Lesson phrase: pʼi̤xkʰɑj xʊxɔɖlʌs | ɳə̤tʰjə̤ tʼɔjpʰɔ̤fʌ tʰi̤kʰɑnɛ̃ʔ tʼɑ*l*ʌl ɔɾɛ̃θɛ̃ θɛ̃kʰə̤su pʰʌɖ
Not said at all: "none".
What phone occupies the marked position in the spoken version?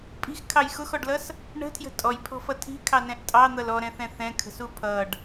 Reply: n̪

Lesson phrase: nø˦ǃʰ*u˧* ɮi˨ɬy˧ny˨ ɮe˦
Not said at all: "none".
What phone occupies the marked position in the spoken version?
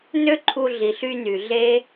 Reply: u˧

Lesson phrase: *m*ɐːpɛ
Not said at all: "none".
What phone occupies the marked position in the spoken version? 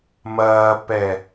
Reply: m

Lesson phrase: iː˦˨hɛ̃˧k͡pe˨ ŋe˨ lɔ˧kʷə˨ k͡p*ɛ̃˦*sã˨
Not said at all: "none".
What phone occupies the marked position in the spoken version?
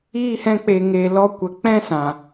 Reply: ɛ̃˦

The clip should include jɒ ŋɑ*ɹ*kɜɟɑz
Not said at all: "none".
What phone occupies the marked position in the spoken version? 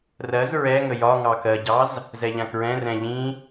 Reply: none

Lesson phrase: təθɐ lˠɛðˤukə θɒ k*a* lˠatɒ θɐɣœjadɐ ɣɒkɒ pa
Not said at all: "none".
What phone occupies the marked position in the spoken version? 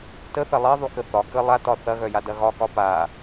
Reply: ə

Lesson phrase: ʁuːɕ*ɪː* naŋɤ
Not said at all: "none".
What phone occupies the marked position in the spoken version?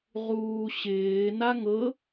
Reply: ɪː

